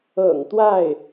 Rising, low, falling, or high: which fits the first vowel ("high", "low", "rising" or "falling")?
low